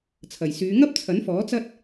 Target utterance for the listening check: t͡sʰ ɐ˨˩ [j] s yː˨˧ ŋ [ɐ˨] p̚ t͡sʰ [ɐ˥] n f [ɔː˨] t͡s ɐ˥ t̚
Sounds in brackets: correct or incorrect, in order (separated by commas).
correct, incorrect, incorrect, incorrect